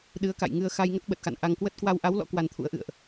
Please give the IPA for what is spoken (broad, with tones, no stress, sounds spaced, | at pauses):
ɗ ɨ˨˦ ə̯ k a̰˧˨ j ŋ ɨ˧ ə̯ x a˧ j ŋ ə˦˥ t̚ ɓ ə˨˩ t̚ x a̰˧˨ n ʔ a˧ ŋ k w ə˦˥ t̚ k w a˧ w ʔ a˨˦ w l ɔ̰˧˥ k w a˧ n t̪ʰ ṵ˧˥ ə̯ ʔ ɨ̰˧˨ ə̯ ʔ